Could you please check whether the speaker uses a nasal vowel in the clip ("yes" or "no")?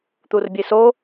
no